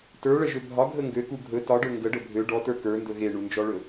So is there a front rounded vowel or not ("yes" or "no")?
yes